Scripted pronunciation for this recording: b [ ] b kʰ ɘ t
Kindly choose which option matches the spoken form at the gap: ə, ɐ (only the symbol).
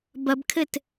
ɐ